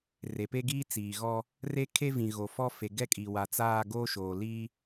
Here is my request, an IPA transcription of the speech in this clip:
r e˨ p e˦ ɡ iː˦ t͡s iː˨ ɣ ɔ˦ | r e˦ kʰ e˦ v ĩ˨ ɣ o˨ f ɔ˦ f e˨ ɡ ɛ˦ kʼ i˨ w a˨ t͡s aː˦˨ ɡ oː˦ ʃ oː˨ l iː˦

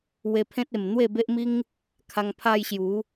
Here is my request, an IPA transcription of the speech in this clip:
w e˧ pʰ ẽ˦ t̚ e˨˩ m n̪ w e˥˧ b e˦ ʔ m i˦ ŋ | kʰ a˧ ŋ pʰ a˧ j ɕ j u˨˦

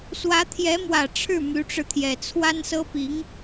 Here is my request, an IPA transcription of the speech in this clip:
s w ä˧˥ t̪ʰ j ɛ˧˥ m w ä˨˩ ʈ͡ʂʰ ɻ̩˥˩ m y˧˥ ʈ͡ʂ ɻ̩˧ t̪ʰ j ɛ˨˩ t͡sʰ w a˥ n s ɤ˥ p i˧˥ ŋ

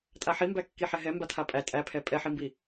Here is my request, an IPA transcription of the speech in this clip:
tʼ a ħ i m b æ kː i ħ ɛ ɦ ɛ m b a tʰ a pʼ æ tʼ æ pʰ ɛ pʼ ɛ ħ i m b i

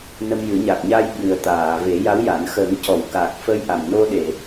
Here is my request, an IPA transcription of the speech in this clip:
n ə˧ m j ɨ˨˩˦ ɲ a˨˩ k̚ ɲ a˧ j ɓ ɨ˨˩ ə̯ t̪ aː˨˩˨ v e˨˩˦ j a˧˥ w j a˨˩˦ n x ə˨˩˦ ŋ c ɔ˨˩˨ w k a˨˩ k̚ f ə˧ j ʔ a˨˩ m n o˧ ɗ e˨˩˨

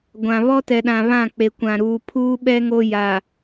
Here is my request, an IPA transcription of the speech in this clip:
ɡʷ ã˨ β ɔ˦ t ɛ˨ ɗ ã˨ β ã˦˨ k͡p e˨ kʷ ã˨ ɾ uː˨ pʰ uː˦ ɓ ɛ˦ ŋ o˦ j a˨

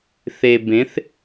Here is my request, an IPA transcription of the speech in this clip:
θ e˩ b ẽ˩˧ θ

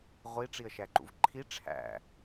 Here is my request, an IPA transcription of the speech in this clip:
ʁʷ i ʈ͡ʂ i ə̯ ʃ æ ǃ ṵ v ǃʰ i ʈ͡ʂʰ æ̰

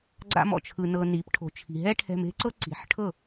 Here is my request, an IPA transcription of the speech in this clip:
ɡ͡ǀ a̰˦ m ɔ̰˦˨ t͡ʃʰ ɯ˧ n ɤ˧ n i˨˦ p ʈʰ o̤˨ t͡ʃʰ i̤˨ ɦ ɛ˦ ʈʰ ɛ̤˦ m e̤˦ ǀ ɤ˦ ǀ i̤˨˦ ħ ʈʰ ɤ˦˨

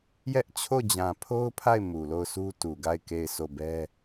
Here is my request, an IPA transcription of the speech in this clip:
j ɛ˦ ʔ t͡ɕʰ o˦˨ d͡ʑ ã˨ pʰ o˦ ʊ̯ pʰ a˦˨ ɪ̯ m u˨ l o˦˨ ʊ̯ s u˦ t u˨ ɡ a˦˨ ɪ̯ k e˦˨ ɪ̯ s o˦˨ b ɛ˦

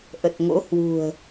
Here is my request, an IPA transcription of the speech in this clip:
ʔ ə˨˩ t̚ ŋ o̰˧˥ h w ṳ˨˩ ə̯

